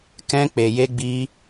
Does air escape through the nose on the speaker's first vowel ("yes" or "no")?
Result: yes